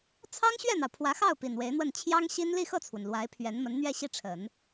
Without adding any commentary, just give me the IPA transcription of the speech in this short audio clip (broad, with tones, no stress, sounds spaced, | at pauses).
t͡sʰ ɑ˥ ŋ ɕ ɥ ɛ˥˩ n̪ ɑ˩ ʊ̯ pʰ w ä˧˥ x ɑ˥˩ ʊ̯ p i˨˩ n w e˧˥ ɪ̯ n̪ w ə˥˩ n t͡ɕʰ j ɑ˥ ŋ ɕ i˥ n l i˥˧ x ɤ˥˩ t͡sʰ w ə˩ n l w a˧˥ ɪ̯ pʰ ɥ ɛ˧˥ n m ə˧˥ n n̪ ɥ ɛ˥˧ ɕ i˥˩ ʈ͡ʂʰ ə˨˩˦ n